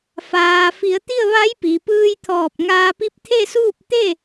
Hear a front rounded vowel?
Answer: no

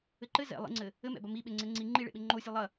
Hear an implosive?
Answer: yes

